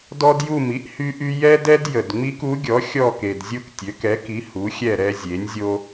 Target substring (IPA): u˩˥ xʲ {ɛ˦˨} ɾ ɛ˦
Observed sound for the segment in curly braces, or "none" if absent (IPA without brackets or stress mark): ɛ˦˨